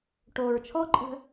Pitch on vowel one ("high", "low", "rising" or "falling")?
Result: low